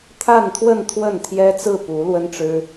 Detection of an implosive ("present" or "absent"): absent